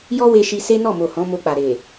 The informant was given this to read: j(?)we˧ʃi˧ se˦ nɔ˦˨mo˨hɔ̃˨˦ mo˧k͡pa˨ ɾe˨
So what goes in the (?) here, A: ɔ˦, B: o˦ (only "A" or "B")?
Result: A